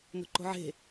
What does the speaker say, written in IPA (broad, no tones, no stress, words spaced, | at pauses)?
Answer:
no̤ǃo̤ʕe̤